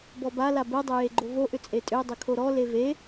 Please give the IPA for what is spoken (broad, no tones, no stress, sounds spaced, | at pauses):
b ɔ b a l a b ɛ dˤ ʏ j e ɡ͡ǃ o v o ʔ ʏ t͡sʼ e tʼ ʏ e̯ dˤ ʏ kʰ o ɾ ɔ l e v e